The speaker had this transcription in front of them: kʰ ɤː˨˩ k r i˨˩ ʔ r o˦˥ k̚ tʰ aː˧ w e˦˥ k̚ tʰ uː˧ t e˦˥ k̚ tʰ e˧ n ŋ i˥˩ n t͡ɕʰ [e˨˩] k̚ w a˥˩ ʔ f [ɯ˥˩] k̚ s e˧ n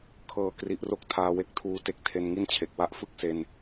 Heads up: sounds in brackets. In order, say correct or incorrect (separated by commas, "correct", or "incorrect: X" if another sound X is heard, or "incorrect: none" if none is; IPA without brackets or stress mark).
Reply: correct, correct